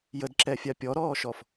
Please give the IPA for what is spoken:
jədǁɛfʲa pʲɔɾɔːʃɔf

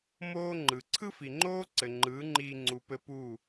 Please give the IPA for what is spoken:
moː˦ ŋ͡ǃɯ˨ ǀʰɯ˦fi˨ŋ͡ǃoː˦ ǀɘ˨ŋ͡ǃɯː˨˦ŋ͡ǃiː˧ ŋ͡ǀu˨pɘ˧ puː˦˨

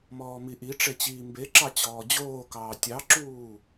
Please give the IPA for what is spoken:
mɔːmiʔiʈ͡ʂe t͡ɕiːmbeǁɑ t͡ɕɔːd͡ʑoːkɑː tʲɑǁuː

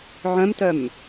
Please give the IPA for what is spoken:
ʕœ̃mtœm

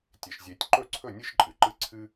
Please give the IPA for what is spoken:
tʲe˩ʃzʲe˨˩˦tʲ ǃɵ˥˩ǀʰɵ˥˩ nʲɨ˥ʃǃʼɨ˩ǃɨ˥˩ ǀʰɨ˥

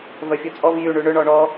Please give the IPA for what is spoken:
vœfʲut͡sʼɔv jy ɳyɳʏ ɳɔɳɔ

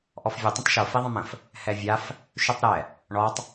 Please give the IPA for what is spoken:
ʔɔfvʲə tˤə̃tˤʃo fiðˤə̃mə̃f | hɛvʲaf | ʃytˤɾɛ | ɳɔtˤ

